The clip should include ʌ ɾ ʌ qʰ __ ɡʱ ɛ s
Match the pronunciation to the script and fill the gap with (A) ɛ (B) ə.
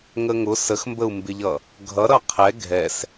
A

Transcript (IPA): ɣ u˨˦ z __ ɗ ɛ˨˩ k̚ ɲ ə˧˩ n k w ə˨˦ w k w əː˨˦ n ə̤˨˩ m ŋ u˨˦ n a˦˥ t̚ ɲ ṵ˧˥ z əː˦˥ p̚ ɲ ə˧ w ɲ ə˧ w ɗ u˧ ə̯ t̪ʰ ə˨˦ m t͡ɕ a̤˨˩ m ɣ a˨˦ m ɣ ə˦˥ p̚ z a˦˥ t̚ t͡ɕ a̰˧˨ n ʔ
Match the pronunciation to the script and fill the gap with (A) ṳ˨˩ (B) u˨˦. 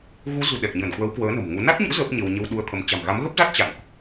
A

